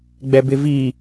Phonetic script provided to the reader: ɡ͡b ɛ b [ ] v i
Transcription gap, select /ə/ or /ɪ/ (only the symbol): ɪ